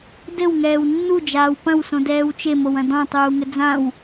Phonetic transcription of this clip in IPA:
d ɘ w ŋ ɛː w nː u d͡ʒ aː w p ɐ̃ w s õ d ɛː w t͡ʃ e m o w ɐ̃ d ɔ̃ tˤ uː ŋ ɘ d͡z ã w

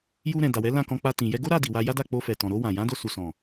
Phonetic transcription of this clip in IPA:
j u˧ ɾ ɛ̃˨ d a˨ w ɛ˨˦ l ã˦˨ k ɔ̃˧ k͡p a˧ t ĩ˨ j ɛ˧ ɡ o˦ ɾ a˦˨ d i˨ w a˧ j a˦ d a˦˨ k͡p o˧ f ɛ˨ t ɔ̃˨ ɾ o˧ w ã˨ j ã˨˦ d o˧ s u˨ s ɔ̃˨

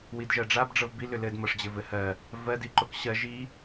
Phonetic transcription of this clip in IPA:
w i d ʒ ɜ ɖ͡ʐ a b ɖ͡ʐ ɤ v b i l ʏ l ɘ d m ɤ ʂ d͡ʑ ɘ v ɘ h ɜ | v ɜ d i ǃ o k ɕ ɜ ʒ i

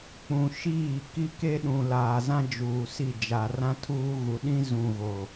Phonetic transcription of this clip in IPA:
k͡p ũ˨ ʃ iː˦˨ k i˦ k e˦ ɗ ũ˨ l aː˨ z ã˦ d͡ʒ uː˨ s i˦˨ d͡ʒ a˨ r ã˦ tʰ uː˦ ɣ u˨ ɗ ĩ˦ z ũ˨ ɣ o˨

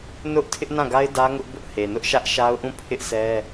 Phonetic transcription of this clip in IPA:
n ʊ˦ ʔ tʰ ɪ˦ ʔ n ã˦˨ ɡ a˦ ɪ̯ d ä˦ ŋ ʊ˦ ʔ b ʊ˦ ʔ h e˨ n ʊ˦ ʔ ʃ ä˦ ʔ ʃ a˦ ʊ̯ ʔ ũ˦˨ pʰ ɪ˦ ʔ sʰ ɛ˦

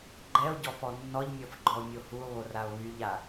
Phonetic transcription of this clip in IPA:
ɡ͡ǃ ɛ o̯ ɟ ɔ f ɔ nː ɔ ʎ mʲ ɔ f ɡ͡ǃ ɔ o̯ mʲ o h u o̯ β o r a o̯ β y ʎ a

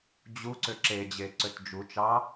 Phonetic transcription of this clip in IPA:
d͡ʑ u ǀ ʏ ǁ e d͡ʑ e ǀ ø t d͡ʒ u t͡ʃ ɑ

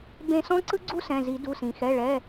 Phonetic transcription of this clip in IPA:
b ẽ˦˨ s ɔ̃˥ ǀ ɯ˥ ɡ͡ǀ u˥ s ɛ̃˩˧˩ z i˨˩˦ d u˩˧˩ s ĩ˩ x ɛ˩˧˩ ɭ ɛ˩˧˩

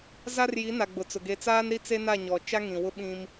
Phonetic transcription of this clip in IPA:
z a˦ r j i˨˦ n a˨ ɡ͡b ʊ˨ t͡s ʊ˨ ɡ e˨ t͡s aː˦ n ɾ i˦ t͡s e˦ n a˦˨ ɲ ɔ˨ t͡ʃ a˦ ŋ ĩ˨ w ʊ˦ ɓ ĩ˦ m

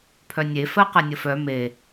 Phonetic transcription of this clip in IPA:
pʰ œ nʲ e f ɜ q ɛ nʲ ə f œ m e

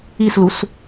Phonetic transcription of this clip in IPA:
i s l u s

